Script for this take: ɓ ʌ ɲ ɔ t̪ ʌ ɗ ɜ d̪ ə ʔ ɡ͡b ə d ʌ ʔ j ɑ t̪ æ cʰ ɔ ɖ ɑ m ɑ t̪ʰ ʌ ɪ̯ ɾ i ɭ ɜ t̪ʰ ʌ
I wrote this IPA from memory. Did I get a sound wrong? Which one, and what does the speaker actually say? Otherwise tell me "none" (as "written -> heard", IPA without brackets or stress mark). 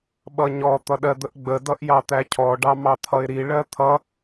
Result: none